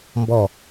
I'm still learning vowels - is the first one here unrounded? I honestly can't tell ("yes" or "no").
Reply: no